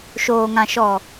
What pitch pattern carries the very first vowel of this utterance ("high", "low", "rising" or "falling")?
low